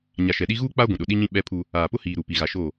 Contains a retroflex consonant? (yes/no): no